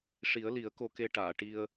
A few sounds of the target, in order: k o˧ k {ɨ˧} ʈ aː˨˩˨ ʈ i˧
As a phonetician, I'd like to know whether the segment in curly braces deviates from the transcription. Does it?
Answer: yes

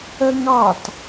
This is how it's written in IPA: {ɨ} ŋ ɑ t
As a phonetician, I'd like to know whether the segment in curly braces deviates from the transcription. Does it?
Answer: yes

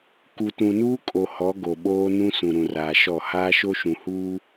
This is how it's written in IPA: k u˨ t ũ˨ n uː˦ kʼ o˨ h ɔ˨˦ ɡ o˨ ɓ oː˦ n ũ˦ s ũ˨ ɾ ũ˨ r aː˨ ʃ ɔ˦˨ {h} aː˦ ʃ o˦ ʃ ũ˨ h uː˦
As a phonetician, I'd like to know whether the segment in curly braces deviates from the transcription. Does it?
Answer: no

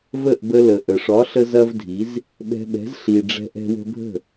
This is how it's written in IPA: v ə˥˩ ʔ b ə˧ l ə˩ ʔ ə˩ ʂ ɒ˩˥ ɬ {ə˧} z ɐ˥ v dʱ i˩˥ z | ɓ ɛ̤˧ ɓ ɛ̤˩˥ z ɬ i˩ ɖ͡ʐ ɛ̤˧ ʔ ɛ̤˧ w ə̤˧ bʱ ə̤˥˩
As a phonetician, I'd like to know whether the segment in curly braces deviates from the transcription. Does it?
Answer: no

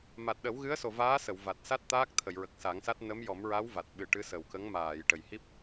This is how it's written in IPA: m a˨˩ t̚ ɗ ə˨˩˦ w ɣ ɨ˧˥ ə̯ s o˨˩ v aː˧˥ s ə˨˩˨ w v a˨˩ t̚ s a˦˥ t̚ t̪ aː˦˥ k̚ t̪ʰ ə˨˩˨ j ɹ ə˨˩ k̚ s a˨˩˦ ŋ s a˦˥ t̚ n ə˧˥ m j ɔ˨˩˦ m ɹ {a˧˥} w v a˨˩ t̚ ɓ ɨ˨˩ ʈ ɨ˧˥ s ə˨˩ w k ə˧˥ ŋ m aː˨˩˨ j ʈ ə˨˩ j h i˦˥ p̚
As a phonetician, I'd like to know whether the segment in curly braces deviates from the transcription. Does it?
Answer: no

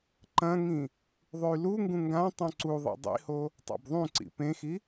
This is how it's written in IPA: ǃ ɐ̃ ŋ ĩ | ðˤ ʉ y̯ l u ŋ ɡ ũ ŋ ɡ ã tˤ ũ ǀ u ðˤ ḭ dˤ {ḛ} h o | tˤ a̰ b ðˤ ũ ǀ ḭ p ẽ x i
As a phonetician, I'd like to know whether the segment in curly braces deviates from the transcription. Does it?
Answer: yes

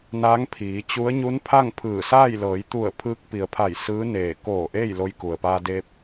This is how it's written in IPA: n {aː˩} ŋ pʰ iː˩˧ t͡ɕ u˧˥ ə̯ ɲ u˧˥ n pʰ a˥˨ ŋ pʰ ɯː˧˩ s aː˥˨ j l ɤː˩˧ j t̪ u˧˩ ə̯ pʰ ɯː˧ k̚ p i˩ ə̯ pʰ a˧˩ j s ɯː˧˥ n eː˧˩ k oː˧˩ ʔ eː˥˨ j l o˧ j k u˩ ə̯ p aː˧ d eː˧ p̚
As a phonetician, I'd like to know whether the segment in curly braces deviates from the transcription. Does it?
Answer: yes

